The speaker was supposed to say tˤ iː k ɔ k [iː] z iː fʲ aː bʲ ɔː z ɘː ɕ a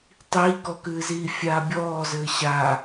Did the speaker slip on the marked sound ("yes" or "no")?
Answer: yes